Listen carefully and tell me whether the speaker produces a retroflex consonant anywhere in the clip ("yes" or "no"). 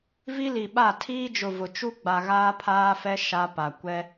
no